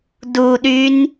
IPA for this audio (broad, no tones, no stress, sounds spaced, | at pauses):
d u ɗ y n